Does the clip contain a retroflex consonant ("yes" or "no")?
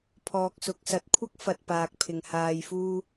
no